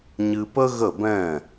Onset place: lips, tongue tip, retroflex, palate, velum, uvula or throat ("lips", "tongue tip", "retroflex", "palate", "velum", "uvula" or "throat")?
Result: palate